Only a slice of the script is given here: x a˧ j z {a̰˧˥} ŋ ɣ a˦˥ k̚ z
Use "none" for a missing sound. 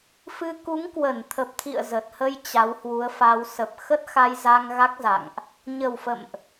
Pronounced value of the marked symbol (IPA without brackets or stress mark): a˧